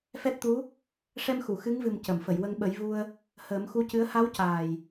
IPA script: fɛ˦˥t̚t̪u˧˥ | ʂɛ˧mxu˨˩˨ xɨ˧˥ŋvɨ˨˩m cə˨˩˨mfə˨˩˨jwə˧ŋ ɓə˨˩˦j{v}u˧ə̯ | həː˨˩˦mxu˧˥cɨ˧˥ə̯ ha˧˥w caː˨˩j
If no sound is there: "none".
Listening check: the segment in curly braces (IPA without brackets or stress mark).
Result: v